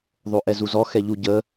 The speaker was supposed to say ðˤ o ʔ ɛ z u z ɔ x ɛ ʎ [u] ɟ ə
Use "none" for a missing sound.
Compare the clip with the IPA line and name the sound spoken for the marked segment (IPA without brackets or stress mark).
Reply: u